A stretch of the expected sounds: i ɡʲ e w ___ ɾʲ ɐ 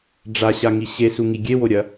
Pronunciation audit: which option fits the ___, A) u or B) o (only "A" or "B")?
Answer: B